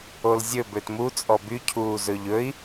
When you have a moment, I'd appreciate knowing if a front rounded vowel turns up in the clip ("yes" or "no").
yes